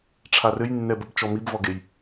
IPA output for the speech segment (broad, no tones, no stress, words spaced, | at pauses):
ʈ͡ʂʰarɘjnːɛbəb t͡ʃɔmibvɔɡej